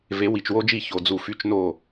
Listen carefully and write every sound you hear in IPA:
v e˨˦ w i˨ t͡ʃ w o˦ d͡ʒ i˦˨ ç o˨ d͡z u˨ f y˧ t͡ʃ n o˦˨

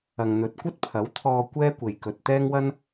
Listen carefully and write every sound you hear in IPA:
ɐ˨ ŋ n̪ ɵ˨ t̚ kʷ ɐ˥ t̚ pʰ ɐ˨˥ w t̪ʰ ɔː˧ kʷ ɛː˥ kʷ e˨ j k ɵ˨ t̚ t̪ ɛː˥ ŋ w ɐ˥ n

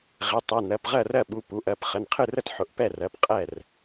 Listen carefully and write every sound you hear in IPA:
ʁ ɪ˩˧˩ tˤ ɛ˩˧˩ n ɜ˩˧˩ p ʁ ɜ˥˩ r ɜ˥˩ ɓ u˩˧˩ p u˩˧˩ ʔ ɜ˩˧˩ p χ ə˩˧˩ n qʰ ɨ˥˩ r ə˥˩ t ħ ʊ˩˧˩ ʔ p ɛ˥˩ r ɜ˩˧˩ p qʼ ɛ˥˩ r

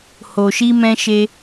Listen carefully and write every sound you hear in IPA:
h o˧ ʃ i˦ m ɛ̃˦ ʃ e˦

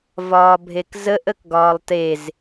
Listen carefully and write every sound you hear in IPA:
v ɒː bʱ e k z ə ʔ ə k ɡ ɒː lˠ t e z

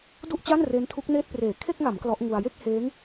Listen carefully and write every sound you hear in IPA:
d u˥˩ ʔ t͡ɕ a˥˩ n r e˦˥ n tʰ u˦˥ k̚ n eː˥˩ t̚ p r eː˨˩ kʰ e˥˩ k̚ ŋ a˩˦ m k l ɔ˦˥ ʔ ŋ u˧ a̯ j e˥˩ k̚ h eː˦˥ ŋ

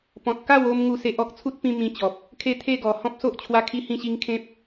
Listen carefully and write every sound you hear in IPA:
p ɔ̃˨ t̚ k a˥˧ w o˧ m ŋ u˥˧ s e˦ ʔ ɔ˦ k̚ t͡sʰ u˦ t̚ p ĩ˧ m ĩ˧ t͡ɕ ɔ˨ p̚ | kʰ e˦ t̪ʰ e˥˧ ɡ ɔ˨˩ h ɔ̃˦ p̚ s o˦ ʔ t͡ɕʰ w a˦ kʰ i˦ h ĩ˥˧ ɕ i˦ ŋ kʰ ẽ˦ p̚

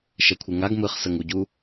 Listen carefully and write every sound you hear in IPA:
ʃ ɛ kʷʰ ɯ ŋ a ɡ m ɯ χ s ə ŋ u ɟ u

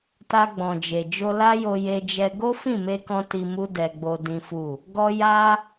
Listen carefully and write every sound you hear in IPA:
t a˧ ɡ͡b ɔ̃˨ d͡ʒ e˨ d͡ʒ o˧ l a˦ j o˧ j e˧ d͡ʒ ɛ˧ ɡ o˦ f ĩ˦˨ m e˧ k ɔ̃˧ t i˧ m u˦ d ɛ˧ ɡ͡b o˧ d ĩ˦ f u˦˨ | ɡ ɔ˧ j a˧

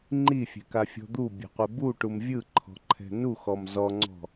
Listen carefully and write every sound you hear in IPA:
ŋ͡ǃ i fʲ ɛ̤ k a fʲ ɔ̤ d̪ u bʲ ɛ̤ qʷ e b u ʈ u m vʲ ɯ ǃʰ ɔ̤ ǃʰ ɛ̤ n u x ɔ m z ɔ ŋ͡ǀ ɔ̤

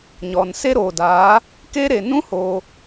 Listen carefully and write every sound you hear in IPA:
ɲ ɔ˨ n s e˦ ɾ oː˨ d aː˨˦ | k eː˦ ɾ e˨ n ũ˦ h oː˧

